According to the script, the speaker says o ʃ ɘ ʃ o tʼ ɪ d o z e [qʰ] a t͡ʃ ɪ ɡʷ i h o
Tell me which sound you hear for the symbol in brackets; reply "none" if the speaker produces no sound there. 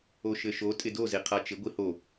qʰ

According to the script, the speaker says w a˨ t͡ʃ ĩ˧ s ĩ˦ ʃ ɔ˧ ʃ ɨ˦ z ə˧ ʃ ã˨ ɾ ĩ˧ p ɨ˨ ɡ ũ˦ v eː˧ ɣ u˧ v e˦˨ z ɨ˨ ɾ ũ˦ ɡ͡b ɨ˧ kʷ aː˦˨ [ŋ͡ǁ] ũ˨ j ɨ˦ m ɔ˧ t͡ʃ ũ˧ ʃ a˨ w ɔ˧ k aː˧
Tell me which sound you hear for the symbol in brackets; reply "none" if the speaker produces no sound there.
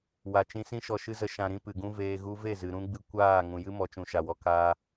ŋ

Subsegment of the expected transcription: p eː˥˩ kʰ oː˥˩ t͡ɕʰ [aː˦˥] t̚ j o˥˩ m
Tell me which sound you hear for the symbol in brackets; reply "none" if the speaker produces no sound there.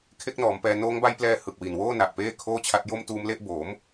a˦˥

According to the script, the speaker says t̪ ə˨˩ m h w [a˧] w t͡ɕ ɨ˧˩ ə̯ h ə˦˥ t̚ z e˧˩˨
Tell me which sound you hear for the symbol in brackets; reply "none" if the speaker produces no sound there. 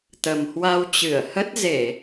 a˧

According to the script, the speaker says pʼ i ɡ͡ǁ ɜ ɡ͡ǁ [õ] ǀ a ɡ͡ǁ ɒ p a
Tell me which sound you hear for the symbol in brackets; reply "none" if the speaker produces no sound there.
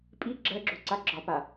o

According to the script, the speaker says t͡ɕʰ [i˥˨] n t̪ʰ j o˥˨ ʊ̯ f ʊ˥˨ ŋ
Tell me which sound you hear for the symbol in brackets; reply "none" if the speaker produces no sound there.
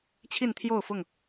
i˥˨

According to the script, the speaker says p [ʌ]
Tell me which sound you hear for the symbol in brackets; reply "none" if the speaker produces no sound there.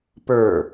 ə˞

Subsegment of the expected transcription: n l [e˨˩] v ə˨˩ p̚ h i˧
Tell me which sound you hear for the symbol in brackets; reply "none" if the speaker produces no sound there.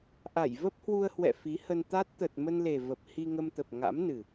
e˨˩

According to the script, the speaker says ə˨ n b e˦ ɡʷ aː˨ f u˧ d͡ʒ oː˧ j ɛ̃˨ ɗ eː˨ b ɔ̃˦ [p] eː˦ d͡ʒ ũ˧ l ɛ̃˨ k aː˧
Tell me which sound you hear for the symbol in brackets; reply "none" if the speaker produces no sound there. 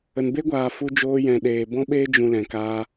ɓ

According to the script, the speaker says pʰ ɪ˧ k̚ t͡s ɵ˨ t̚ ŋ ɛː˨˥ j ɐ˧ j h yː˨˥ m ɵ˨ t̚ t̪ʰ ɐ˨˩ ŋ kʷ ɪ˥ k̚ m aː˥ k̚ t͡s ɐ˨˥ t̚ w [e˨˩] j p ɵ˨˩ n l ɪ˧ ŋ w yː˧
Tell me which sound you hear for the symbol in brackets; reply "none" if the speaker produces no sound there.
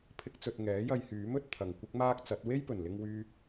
e˥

